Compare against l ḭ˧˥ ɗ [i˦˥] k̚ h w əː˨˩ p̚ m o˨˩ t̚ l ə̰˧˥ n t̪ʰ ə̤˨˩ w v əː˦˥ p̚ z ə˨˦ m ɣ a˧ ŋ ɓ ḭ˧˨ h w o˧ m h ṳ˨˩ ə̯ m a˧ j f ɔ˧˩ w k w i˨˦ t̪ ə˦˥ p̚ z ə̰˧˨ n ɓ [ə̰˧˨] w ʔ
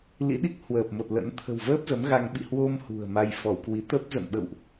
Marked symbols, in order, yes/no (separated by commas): yes, yes